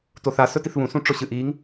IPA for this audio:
t o θ a s ɵ t i θ β ũ s ũ ʈ͡ʂ o ɕ ɨ ʔ i ŋ

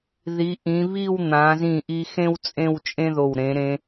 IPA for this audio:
ð i˩˧ ʔ ĩ˩˧ β i˥˧ w n̪ ã˩˧ z ĩ˧˩ ʔ i˧ x ẽ˥ w t͡sʼ ẽ˥˧ w t͡ʃʼ ẽ˥ ð o˧˩ w ɾ ẽ˩˧ ɾ ẽ˧

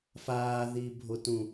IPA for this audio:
f aː ð i bʱ o t ũ

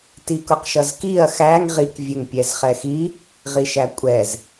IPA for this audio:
t i k ʊ q ʃ ʌ z k i ɐ̯ x æ ŋ ʁ i k vʲ ɛ ŋ pʲ ɛ z χ ɛ x i | ʁ i ʃ æ kʷʼ ɛ z

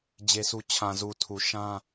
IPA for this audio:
d͡ʑ e˦ sʰ u˦ t͡ɕʰ ã˨ z u˨ tʰ u˨ ʃ ã˦

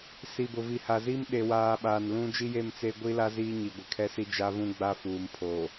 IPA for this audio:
s i˨ b ʊ˨ v i˨ h a˨ z i˦ m ɗ e˨ w aː˨ ɓ aː˨ n l ũ˦ d͡ʒ i˦ j e˦˨ m t͡s e˦ ɡʷ i˦ l a˦ z iː˦ ɲ i˨ ɡʷ ɪ˨ kʰ ɛ˦ s i˦ d͡ʒ a˦ v ũ˦ ɡ͡b a˦ f uː˨ m pʰ oː˨

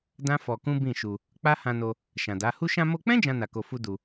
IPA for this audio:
d ã˦ f ɔ˧ k ũ˦ b ĩ˦˨ ʃ u˧ | k͡p a˦ h ã˧ n o˧ | ʃ ã˨ d a˨˦ h u˧ ʃ ã˧ m o˧ k͡p ɛ̃˦ d͡ʒ ã˦ n a˧ k o˧ f u˦ d u˧

